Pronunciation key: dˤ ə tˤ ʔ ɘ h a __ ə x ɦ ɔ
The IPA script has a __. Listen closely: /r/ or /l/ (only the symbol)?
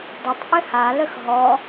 l